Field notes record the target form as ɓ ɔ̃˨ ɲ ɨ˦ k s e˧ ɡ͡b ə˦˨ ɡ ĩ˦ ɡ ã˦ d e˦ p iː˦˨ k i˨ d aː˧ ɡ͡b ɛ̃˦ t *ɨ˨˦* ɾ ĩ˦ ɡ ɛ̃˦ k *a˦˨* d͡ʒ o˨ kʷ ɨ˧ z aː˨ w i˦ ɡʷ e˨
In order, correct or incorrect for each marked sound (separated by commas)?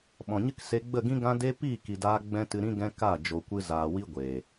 incorrect, correct